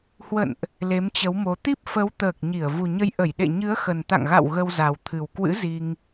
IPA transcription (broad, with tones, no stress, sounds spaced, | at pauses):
h w ə̰˧˨ n ʔ | l e˨˦ m t͡ɕ ə˨˦ w m o˨˦ t̪ i˦˥ p̚ f ə˨˦ w t̪ əː˨˩ k̚ ɲ i˧˩ ə̯ v u˨˩ ɲ ə˨˦ j ʔ ə˧˩ j ɗ ḛ˧˨ ɲ ɨ˨˦ ə̯ x ə˨˩ n t̪ a̰˧˨ ŋ ɣ a̰˧˨ w ɣ ə˧ w z a˨˩ w t̪ʰ ɨ˨˩ w k w ɨ̰˧˥ z i˧ ŋ